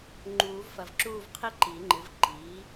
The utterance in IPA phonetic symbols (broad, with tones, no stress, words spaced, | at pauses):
ŋ͡ǃuː˨˩˦vfɐ˨vǁuː˥˧v qʰi˥ǃi˨˩˦ŋ͡ǃɨ˩˥v ǃiː˩˥